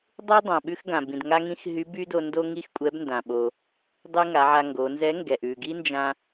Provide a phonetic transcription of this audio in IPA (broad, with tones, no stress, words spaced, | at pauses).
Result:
dˤʉ˥ dˤã˩ɓʉ˥x ɡã˩ bĩ˩dŋa˥ŋĩ˥x ɦy˧˥by˥do˧ndo˥ ŋi˥xkʷʼɛ˧˥bndã˩ɓo˩ | dˤy˥ŋa˩˧ʕa˧ŋɡo˩˧ nzɛ˧˥ŋɡɛ˩ʔʉ˩ɡi˥ nd͡ʒã˧